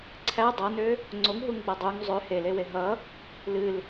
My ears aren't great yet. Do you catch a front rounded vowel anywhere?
yes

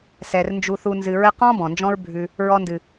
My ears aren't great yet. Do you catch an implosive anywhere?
no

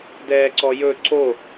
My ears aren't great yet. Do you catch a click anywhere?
yes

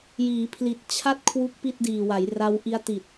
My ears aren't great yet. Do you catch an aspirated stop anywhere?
yes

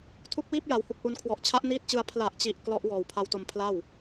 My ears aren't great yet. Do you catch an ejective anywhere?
no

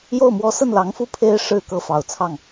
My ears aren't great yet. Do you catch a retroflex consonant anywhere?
yes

